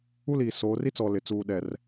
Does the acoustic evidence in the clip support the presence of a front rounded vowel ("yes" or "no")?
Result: no